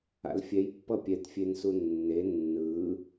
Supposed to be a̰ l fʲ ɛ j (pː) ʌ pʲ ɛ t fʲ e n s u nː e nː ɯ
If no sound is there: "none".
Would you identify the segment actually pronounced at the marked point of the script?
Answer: pː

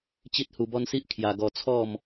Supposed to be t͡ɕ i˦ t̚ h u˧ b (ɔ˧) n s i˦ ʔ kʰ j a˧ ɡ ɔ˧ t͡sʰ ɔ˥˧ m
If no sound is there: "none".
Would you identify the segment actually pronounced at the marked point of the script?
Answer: ɔ˦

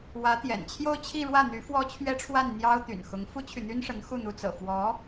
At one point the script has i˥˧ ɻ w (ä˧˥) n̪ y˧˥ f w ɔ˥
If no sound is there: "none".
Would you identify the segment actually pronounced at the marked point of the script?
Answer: ä˥˩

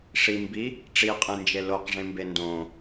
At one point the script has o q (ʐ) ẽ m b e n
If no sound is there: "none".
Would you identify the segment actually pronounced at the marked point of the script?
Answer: ʐ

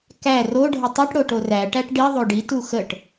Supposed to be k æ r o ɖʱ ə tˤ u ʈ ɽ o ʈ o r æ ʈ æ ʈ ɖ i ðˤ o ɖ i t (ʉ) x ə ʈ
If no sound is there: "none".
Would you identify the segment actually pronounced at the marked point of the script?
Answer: u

